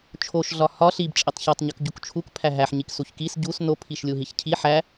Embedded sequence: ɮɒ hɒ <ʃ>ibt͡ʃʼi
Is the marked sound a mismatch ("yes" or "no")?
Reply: yes